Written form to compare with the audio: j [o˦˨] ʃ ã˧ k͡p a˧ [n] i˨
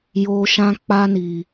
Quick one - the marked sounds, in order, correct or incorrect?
incorrect: o˨, correct

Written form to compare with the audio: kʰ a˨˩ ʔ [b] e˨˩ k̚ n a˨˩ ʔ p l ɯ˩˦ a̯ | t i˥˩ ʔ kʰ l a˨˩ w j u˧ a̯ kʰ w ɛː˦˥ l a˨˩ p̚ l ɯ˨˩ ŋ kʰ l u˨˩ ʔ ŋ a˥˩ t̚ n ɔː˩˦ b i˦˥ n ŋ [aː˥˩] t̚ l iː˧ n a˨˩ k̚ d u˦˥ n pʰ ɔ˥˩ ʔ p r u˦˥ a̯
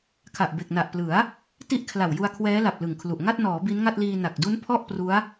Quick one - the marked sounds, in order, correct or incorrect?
correct, incorrect: a˥˩

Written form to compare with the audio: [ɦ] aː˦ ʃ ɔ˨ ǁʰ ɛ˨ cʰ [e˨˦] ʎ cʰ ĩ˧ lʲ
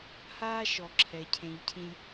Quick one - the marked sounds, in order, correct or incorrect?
incorrect: h, incorrect: ẽ˨˦

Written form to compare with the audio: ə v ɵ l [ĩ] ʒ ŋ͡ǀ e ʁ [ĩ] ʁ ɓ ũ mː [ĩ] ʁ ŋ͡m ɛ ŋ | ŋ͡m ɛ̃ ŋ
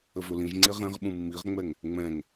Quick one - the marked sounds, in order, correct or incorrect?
correct, incorrect: ẽ, incorrect: i

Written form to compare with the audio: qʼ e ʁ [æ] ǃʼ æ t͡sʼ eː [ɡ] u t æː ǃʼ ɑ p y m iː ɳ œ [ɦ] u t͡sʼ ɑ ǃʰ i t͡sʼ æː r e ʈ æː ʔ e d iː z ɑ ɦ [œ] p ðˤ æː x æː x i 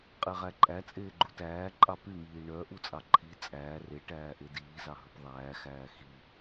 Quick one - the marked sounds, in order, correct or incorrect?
correct, incorrect: ɡ͡ǃ, incorrect: ʔ, incorrect: ɵ

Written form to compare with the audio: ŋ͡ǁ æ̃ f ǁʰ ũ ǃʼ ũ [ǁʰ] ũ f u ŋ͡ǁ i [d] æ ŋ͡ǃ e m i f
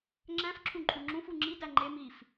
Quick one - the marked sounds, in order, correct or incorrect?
incorrect: ŋ͡ǁ, correct

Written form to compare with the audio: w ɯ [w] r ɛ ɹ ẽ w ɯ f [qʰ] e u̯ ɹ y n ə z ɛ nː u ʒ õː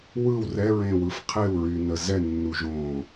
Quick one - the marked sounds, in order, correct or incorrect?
correct, correct

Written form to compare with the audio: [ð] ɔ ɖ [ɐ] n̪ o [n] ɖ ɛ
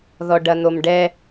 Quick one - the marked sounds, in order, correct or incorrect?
correct, correct, incorrect: m

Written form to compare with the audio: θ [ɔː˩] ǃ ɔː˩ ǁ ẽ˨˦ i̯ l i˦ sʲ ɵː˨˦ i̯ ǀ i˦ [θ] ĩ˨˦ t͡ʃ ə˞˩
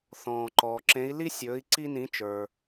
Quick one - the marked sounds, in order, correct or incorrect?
incorrect: ɔ̃ː˩, incorrect: n

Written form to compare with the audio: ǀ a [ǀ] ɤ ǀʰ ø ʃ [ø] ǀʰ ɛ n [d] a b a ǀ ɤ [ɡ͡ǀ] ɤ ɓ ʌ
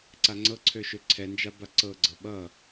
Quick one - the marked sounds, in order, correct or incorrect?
incorrect: ŋ͡ǀ, correct, incorrect: d͡ʒ, correct

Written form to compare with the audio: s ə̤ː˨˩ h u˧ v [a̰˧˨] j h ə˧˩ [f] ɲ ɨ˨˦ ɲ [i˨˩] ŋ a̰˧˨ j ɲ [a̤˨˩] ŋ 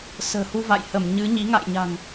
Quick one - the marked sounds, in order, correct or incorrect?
correct, incorrect: m, incorrect: i˨˦, correct

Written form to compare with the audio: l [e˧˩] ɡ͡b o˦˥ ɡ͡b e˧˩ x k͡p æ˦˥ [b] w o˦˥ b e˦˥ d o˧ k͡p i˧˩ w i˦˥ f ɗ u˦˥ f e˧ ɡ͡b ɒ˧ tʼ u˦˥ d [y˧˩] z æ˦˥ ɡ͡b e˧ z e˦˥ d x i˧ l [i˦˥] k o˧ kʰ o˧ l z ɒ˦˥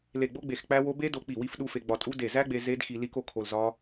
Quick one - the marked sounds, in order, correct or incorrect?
correct, incorrect: none, incorrect: e˧˩, correct

